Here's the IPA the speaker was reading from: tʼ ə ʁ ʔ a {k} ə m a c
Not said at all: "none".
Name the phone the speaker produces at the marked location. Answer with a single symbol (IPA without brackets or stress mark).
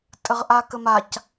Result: k